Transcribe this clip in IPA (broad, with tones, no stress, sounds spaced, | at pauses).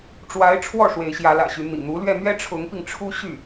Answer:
ʈ͡ʂ w a˧˥ ɪ̯ ʈ͡ʂʰ w ɔ˥˩ ʂ w e˧˥ ɪ̯ ɕ j ä˧˥ l ä̰˨˩ ɕ y˧˥ n̪ ḭ˨˩ n̪ u˧˥ l ɥ ɛ˥˩ n̪ ɥ ɛ˥ ʈ͡ʂʰ ʊ˧˥ ŋ p i˧ ŋ ʈ͡ʂʰ u˥ ɕ y˥˩